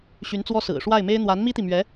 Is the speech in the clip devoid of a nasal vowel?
yes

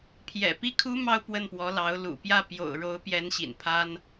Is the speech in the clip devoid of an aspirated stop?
no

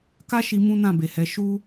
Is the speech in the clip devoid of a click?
yes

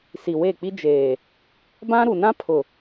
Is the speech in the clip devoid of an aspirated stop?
no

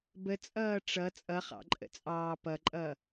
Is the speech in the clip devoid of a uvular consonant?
no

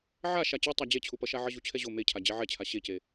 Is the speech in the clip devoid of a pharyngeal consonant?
no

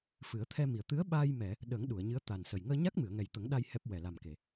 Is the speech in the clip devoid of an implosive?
no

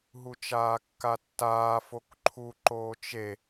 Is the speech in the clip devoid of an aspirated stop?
no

